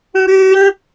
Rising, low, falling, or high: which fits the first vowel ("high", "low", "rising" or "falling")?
high